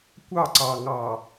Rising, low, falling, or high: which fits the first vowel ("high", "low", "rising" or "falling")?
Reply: falling